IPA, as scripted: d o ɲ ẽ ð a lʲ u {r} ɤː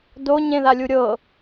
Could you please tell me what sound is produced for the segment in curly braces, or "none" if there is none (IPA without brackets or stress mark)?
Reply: ɾʲ